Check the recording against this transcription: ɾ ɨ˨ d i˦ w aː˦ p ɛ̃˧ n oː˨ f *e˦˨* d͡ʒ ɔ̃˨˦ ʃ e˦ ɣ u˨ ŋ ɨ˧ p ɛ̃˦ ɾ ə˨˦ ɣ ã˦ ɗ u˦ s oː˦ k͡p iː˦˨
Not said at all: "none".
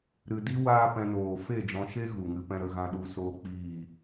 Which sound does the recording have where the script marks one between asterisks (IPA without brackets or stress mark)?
e˦˨